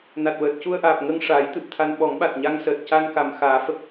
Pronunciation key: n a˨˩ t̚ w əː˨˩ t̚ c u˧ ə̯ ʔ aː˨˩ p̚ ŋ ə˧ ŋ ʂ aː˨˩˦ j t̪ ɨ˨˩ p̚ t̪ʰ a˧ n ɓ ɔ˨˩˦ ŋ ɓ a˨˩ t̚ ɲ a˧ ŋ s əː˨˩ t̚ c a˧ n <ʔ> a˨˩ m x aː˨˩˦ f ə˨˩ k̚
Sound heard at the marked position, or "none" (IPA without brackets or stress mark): k